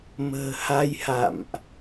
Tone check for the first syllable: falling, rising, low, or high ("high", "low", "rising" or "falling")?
low